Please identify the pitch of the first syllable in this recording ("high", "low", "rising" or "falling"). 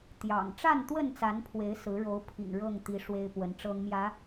low